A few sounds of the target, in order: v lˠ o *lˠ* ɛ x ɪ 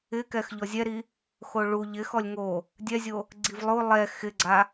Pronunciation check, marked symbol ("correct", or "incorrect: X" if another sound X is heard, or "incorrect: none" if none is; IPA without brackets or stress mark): correct